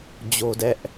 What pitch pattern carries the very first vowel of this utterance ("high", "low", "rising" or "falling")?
high